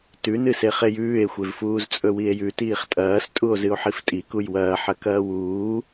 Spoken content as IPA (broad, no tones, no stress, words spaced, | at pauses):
tʉnɨse χejʉːe̯xʷevfuːz t͡sʼɵwie̯jʉtiːχ tʼɐːstʼuo̯ zɨo̯ħiftʼi kujwɐːħɐ kɐːwuː